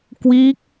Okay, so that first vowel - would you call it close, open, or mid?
close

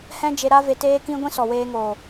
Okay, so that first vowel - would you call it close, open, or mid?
mid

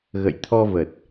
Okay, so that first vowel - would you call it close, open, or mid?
mid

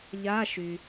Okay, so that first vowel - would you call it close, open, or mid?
open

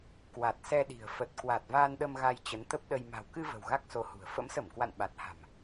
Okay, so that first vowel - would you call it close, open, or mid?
open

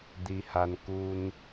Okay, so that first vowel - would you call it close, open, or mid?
close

